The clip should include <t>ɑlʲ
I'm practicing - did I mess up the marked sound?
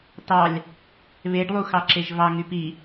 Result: no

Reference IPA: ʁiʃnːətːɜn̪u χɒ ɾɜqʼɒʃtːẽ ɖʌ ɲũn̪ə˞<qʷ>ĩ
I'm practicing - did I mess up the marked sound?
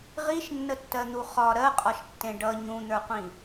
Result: no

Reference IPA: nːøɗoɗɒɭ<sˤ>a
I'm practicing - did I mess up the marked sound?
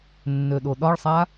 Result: no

